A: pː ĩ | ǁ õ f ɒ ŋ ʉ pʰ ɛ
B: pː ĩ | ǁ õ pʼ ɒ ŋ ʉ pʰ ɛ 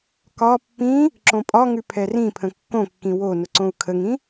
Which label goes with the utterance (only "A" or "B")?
B